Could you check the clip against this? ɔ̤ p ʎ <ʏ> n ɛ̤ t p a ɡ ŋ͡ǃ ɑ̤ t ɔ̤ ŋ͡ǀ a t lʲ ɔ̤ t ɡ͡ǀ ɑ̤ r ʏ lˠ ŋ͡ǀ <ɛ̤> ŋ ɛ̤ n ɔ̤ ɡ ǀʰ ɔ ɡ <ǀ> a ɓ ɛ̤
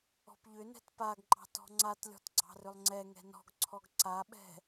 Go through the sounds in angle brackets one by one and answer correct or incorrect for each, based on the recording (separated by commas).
correct, incorrect, correct